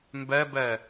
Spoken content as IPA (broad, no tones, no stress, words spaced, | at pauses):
mbɛbɛ